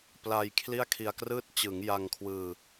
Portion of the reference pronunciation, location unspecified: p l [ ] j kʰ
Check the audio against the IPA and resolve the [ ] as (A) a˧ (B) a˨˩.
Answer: A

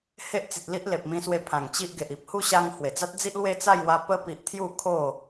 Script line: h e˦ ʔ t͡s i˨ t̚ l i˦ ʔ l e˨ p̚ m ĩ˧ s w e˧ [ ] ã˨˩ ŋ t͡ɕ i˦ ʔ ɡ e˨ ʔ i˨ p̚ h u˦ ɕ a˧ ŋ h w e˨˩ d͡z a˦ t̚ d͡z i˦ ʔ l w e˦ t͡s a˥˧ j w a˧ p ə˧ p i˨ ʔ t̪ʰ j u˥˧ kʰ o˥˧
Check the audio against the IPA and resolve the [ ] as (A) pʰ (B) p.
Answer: A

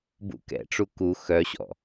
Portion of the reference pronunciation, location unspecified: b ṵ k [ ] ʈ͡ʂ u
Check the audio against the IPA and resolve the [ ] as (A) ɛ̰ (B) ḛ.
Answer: A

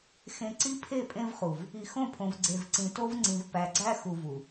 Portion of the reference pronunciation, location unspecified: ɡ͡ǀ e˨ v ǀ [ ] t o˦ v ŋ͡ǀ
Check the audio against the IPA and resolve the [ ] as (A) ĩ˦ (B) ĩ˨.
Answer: B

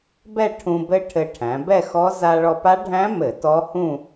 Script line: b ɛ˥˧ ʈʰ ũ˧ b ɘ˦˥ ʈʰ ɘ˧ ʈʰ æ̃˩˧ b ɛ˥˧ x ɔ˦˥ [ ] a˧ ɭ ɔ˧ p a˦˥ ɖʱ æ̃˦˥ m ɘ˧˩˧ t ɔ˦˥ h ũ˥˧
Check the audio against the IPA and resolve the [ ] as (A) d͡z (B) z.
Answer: B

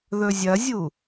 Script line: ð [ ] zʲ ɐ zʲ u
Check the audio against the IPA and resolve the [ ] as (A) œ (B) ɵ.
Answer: B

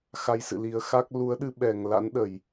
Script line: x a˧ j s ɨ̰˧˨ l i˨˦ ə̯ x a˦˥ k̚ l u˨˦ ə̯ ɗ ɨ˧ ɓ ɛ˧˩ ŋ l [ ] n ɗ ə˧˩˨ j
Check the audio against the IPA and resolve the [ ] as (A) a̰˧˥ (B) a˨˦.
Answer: A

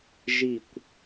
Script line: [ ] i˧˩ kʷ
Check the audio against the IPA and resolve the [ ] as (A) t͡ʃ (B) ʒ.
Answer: B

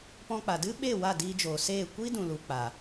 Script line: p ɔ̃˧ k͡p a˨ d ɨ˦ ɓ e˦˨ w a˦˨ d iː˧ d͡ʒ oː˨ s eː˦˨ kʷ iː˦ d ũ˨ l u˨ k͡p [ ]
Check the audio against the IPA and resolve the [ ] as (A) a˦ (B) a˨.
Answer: B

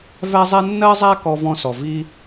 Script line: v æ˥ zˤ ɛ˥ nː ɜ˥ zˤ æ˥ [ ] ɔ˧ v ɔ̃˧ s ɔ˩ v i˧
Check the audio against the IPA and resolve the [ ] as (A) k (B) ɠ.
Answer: A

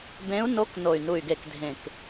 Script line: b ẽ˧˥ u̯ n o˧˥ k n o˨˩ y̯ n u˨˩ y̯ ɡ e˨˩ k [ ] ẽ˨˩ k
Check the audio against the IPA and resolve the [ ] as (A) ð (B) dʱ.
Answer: B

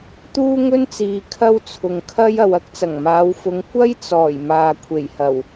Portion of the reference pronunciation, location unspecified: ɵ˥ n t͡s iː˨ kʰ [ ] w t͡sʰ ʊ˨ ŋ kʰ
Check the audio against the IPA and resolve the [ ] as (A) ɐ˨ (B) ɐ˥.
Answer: B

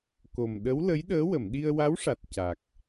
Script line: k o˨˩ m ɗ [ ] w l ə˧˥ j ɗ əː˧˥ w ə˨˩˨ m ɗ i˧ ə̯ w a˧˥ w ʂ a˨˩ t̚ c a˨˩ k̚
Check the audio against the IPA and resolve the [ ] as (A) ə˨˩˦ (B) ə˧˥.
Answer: B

